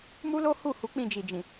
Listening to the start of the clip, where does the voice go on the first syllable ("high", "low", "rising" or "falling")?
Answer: high